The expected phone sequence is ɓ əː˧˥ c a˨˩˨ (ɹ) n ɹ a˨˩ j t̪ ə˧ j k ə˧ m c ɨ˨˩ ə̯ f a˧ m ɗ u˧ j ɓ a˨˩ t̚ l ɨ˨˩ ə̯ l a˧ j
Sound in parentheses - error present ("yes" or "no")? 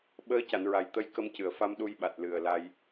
yes